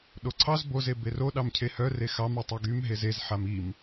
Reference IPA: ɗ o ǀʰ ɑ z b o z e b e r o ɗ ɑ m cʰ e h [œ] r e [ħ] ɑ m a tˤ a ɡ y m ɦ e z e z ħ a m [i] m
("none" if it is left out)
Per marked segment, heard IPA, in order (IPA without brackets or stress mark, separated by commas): œ, x, i